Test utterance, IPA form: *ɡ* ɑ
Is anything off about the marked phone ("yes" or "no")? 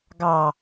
no